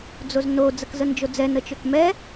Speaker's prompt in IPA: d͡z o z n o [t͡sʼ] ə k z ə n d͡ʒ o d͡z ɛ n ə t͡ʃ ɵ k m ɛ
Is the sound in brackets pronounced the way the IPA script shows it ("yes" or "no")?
no